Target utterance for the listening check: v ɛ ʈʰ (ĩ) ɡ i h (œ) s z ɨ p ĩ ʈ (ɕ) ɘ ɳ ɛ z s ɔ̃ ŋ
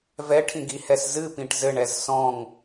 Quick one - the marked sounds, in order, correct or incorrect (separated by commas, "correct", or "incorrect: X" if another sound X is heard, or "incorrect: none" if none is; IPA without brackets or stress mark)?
correct, incorrect: ɛ, incorrect: z